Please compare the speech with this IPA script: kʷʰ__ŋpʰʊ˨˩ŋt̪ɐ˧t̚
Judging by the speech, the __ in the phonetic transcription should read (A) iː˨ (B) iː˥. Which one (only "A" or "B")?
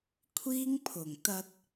B